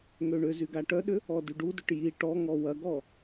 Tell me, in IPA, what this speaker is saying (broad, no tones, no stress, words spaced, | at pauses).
ŋøɳʏzyɡ aʈœɗʏ | ɔdyɖudʏʈ ji ʈɔŋɔ wɐɡɔ